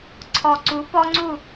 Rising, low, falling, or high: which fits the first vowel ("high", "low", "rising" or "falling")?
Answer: low